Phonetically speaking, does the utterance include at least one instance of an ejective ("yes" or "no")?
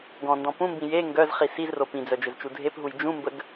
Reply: no